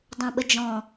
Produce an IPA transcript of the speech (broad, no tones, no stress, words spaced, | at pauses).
dˤũɓəd͡ʒɔ̃